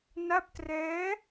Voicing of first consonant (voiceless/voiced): voiced